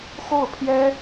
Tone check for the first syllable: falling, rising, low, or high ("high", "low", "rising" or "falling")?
falling